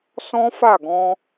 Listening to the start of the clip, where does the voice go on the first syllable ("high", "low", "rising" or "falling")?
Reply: high